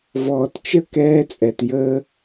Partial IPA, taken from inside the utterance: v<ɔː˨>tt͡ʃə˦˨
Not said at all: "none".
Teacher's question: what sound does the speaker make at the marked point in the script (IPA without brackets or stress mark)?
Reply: ɔː˨